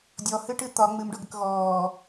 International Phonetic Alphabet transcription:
dʲɔhɨʈɨ t̪ɒ ŋ͡mɨmɖoɡək ɣɔː

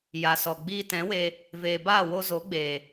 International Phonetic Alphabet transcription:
ja˨sɔ˨ ɡ͡biː˧tɛ̃˨˦we˧ | veː˨baː˦˨wo˧zo˨˦ ɡ͡beː˨

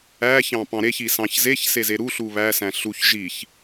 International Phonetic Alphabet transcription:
æçɑ̃ pɑ̃ɾeçi sɑ̃çzeçse zeɾuɬu βæsæ̃ ɬuç ʒiç

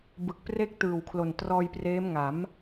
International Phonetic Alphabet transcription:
bɯ˨˩k̚pre˥˩k̚ tɯː˨˩wkʰlo˨˩ntrɔː˧jpreː˦˥m ŋa˩˦m

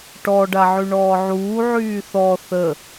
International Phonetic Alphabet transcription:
ʈɔ ɖaʕyɳɔːʕuː ʕyːθɔ θə

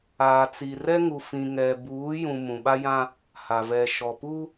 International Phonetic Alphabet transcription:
aː˨t͡si˨ rɛ˦ŋu˨fĩ˨ ŋɛ˨buː˨˦jũ˨ mũ˨ɓa˦jã˦ | ha˨vɛ˨ʃɔ˨pu˦

